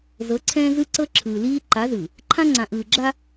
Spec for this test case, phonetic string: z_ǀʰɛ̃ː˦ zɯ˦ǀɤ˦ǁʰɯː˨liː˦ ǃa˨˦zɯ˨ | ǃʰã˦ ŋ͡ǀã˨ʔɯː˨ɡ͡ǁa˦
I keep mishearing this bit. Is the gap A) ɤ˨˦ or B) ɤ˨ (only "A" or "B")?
A